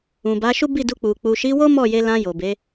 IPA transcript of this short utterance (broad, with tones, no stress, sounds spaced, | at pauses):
ũ˨ b a˨˦ ʃ u˦ b i˦˨ d u˧ k͡p u˨ k͡p u˨ ʃ i˨˦ w o˦ m ɔ˦˨ j e˧ l ã˧ j o˨ b e˨˦